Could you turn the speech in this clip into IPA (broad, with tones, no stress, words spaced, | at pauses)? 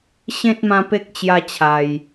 ɕẽ˦t̚ mã˦pe˦k̚ t͡ɕja˦t͡ɕʰa˧j